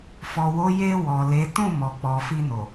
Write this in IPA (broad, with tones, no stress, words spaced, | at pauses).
fɔ˨wo˨˦ je˧ wɔ˨le˨˦ tũ˦˨ mɔ˨ k͡pɔ˨fi˧no˨